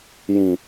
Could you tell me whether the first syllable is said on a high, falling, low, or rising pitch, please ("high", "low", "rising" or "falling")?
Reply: low